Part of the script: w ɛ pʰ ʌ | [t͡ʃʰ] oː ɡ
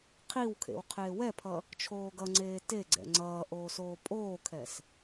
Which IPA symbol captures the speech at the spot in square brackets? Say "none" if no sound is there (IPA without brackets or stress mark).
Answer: t͡ʃʰ